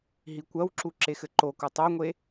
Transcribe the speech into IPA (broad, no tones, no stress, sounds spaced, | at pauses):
ɦ i kʷ ɐ w ǁ u ǁ e x ɘ ǃ o k u tˤ o ŋʷ e